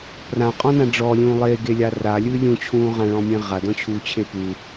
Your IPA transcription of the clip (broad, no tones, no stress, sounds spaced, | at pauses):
p r ã qʼ ɔ̃ n ã ɖ͡ʐ ɔ lʲ ũː lˠ e ɡ e lʲ a r a lʲ ɨː lʲ ũ t͡ɕʰ ũː ʁ ã ɭ ɔ̃ mʲ ẽ ʁ a d ɔ̃ t͡ɕʰ uː t͡ɕʰ e p u